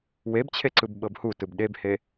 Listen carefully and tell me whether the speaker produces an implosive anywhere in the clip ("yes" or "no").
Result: yes